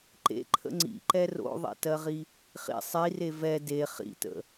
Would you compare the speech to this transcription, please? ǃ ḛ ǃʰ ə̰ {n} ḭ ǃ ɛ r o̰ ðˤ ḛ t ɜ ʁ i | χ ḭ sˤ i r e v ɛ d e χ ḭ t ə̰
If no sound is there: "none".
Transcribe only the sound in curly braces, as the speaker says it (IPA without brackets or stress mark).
ŋ͡ǀ